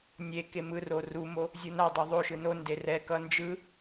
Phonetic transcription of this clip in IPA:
nʲ e k e m ɯ r o r u m o | zʲ u n a dˤ u ðˤ o ʃ ɯ n o n d e r ɛ k ʌ n d͡ʒ ɯ

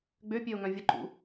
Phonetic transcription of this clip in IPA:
ɡ͡b ø pʲ ø o̯ ŋ œ̃ vʲ ə ǃ ṵ

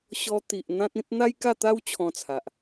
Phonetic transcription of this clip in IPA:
ɕ ɔ˧ t̪ i˨ ʔ n̪ ã˦ t̚ ĩ˦ t̚ n̪ a˦ j k a˥˧ t̪ a˦ w t͡ɕʰ ɔ̃˧ t͡sʰ a˨ ʔ

